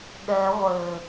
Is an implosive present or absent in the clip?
present